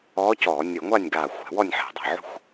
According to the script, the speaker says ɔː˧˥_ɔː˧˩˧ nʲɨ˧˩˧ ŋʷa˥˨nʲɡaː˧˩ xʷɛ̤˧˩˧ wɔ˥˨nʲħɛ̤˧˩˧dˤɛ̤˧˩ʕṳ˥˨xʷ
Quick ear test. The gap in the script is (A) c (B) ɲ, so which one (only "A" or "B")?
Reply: A